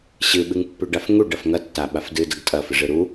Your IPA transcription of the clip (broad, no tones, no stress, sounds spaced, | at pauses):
ɕ ɨ ɓ ɨ ŋ pː ʉ ɖ a f ŋ u ɖ ɐ f ŋ ɐ tː a ɓ a f d ɨ d ɐ ɡ tʼ ɐ f ɨ ʐ ɨ ɾ u